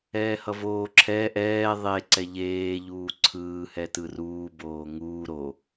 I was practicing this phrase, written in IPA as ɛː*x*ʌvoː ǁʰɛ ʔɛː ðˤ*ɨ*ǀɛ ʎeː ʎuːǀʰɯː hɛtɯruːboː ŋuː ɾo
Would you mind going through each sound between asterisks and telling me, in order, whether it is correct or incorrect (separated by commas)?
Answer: incorrect, incorrect